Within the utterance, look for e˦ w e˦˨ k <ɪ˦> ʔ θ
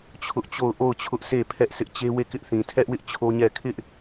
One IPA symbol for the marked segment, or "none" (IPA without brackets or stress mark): ɪ˦